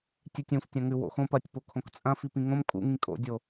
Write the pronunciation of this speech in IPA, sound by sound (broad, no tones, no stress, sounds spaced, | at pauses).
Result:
tʲ ɨ tʲ ũ f tʲ ɐ̃ ŋ ʉ w o̰ x õ p ɐ tʲ p o kʰ õ k t͡sʼ ɐ̃ f i p ĩ ŋ õ m kʼ ṵ ŋ ĩ kʼ o̰ dʲ o